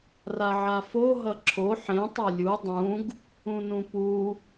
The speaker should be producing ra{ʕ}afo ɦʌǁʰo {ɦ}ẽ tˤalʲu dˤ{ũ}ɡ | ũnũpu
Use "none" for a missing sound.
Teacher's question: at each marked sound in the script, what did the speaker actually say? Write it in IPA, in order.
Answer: ʕ, ħ, ũ

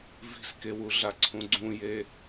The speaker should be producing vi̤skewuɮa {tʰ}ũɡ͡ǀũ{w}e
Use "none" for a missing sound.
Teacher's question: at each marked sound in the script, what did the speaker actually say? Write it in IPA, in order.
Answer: ǀʰ, j

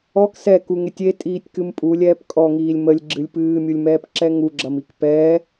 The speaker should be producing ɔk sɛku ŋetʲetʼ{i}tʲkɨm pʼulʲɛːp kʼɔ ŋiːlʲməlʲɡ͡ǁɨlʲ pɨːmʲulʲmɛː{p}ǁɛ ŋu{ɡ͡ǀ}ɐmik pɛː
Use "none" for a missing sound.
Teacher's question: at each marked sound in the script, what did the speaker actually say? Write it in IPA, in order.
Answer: iː, p, ɡ͡ǁ

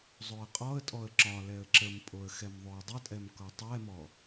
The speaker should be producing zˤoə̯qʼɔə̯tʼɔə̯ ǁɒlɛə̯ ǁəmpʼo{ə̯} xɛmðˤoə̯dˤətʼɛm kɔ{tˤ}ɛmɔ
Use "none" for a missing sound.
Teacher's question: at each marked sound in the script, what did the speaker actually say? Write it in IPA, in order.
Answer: ə̯, tˤ

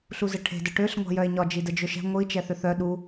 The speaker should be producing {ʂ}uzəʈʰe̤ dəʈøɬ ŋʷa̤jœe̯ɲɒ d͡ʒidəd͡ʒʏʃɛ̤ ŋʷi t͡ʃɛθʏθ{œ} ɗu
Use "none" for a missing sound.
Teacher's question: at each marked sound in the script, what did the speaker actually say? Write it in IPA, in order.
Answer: ɬ, œ

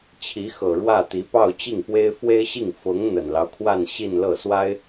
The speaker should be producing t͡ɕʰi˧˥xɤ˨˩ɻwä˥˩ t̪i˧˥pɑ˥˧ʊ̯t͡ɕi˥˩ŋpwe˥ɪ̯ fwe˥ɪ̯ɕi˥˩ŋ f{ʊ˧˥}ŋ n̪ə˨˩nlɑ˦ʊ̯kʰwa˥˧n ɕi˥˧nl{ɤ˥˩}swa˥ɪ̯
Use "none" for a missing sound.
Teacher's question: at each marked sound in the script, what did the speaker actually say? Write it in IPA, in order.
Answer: ʊ˧˥, ɤ˥˩

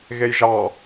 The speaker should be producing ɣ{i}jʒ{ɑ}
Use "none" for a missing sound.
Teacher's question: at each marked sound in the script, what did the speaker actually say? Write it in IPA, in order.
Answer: e, ɑ

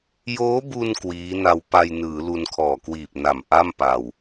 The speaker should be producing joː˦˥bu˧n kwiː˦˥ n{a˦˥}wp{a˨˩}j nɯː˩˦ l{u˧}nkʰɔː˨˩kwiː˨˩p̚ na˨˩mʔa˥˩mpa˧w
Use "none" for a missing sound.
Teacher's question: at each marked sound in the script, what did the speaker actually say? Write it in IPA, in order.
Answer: a˧, a˧, u˧

